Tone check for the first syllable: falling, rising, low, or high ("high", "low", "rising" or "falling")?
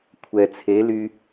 low